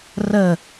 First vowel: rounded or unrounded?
unrounded